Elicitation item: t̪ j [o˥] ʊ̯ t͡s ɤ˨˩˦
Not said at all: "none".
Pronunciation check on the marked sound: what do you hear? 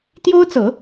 o˥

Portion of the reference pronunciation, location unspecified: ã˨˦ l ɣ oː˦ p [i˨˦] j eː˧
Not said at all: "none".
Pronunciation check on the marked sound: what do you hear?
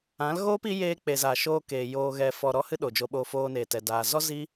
i˨˦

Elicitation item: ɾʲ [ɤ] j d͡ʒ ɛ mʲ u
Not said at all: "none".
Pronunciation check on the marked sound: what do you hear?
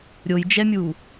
o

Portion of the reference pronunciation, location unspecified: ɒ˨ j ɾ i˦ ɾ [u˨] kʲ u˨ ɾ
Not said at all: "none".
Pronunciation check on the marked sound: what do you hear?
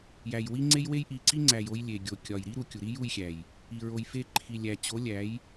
u˨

